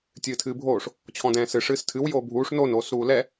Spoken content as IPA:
tʲ ɨː tʰ ɨː bʱ oː ʂ | t͡ɕʰ ɔ̃ d ɛ̃ː s ɨ ʂ ɨː s tʰ ɨ w j oː bʱ uː ʂ n o n oː s ɾ uː l ɛ

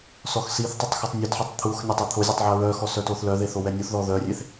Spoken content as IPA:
s ɔ x s i θ tˤ ə tˤ x u tˤ nʲ ɔ t ħ a tˤ t̪ʰ u x nʲ a tˤ e t̪ʰ o zʲ ø tˤ ʕ ɛ ɹ œ x ɔ s œ t o θ l œ ð e θ o w ɛ nʲ o θ ð ɔ ð œ rʲ e θ

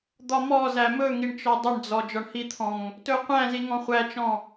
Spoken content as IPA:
d̪ ɒ m ɔ z æ m ɵ ŋ i ɳ t͡ʃ ɔ dˤ ə ɳ d͡z ɔ d͡ʒ ɒ ɳ h i t̪ʰ ɔ̃ ŋ | t ɵ qʷ æ̃ z i ŋ ɔ̃ χʷ æ t͡ʃ ɔ̃

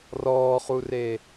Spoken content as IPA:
r ɔː χ u r e

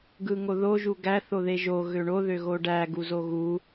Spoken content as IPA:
ɡ ɯ ŋ o ð o ʒ u ɡ æ θ o ð e ʒ o ɣ ø ɳ o ð ø ɣ o ɖ æ ɡ u z o ɣ u

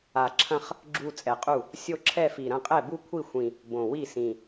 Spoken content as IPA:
a˨˩ ǁʰ ɐ̃˥˧ χ | ɡ͡ǁ u˥˧ t͡sʼ ɛ˨˩ qʼ u˥˩ | sʲ o˥˧ ǁʰ ɛ˥˧ f i˨˩ ɾ ɐ̃˥˩ qʼ ɛ˥˩ b u˥˧ kʷʰ i˥˩ xʷ ĩ˨˩ | b õ˨˩ w i˥˩ s ĩ˨˩

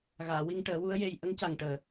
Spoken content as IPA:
ɣ aː˨˩˨ w i˧ ŋ ʈ əː˨˩˦ w u˧˥ ə̯ j e˧ j ʔ ə˧˥ ŋ c a˨˩ ŋ ʈ əː˨˩

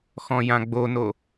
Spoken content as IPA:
x ɔ̃ j ã ɡ͡b o n o

